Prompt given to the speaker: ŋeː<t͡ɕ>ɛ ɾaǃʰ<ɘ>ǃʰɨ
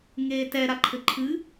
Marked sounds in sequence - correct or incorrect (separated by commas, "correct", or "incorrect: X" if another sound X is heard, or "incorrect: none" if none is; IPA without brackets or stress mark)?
incorrect: t, correct